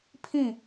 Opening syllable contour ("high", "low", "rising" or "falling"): falling